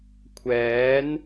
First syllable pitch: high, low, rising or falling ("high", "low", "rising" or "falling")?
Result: rising